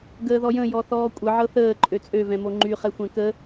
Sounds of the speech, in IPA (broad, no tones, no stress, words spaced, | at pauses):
ɡəːðɔjə̃ jɔθɔːkʷʼə ʕɤθəː ǃʼøt͡sʼø vɛ̃moŋ͡ǃy χɛxʷɛ̃kə